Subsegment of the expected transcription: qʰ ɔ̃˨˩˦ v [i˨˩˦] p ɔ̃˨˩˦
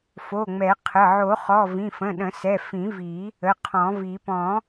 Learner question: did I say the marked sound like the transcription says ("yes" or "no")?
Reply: yes